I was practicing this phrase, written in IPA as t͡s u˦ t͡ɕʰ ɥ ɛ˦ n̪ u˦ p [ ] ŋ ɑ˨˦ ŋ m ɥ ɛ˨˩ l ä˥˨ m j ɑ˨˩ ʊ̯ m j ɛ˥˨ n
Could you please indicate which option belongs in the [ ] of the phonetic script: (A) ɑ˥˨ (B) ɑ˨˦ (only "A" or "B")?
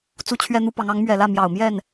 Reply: B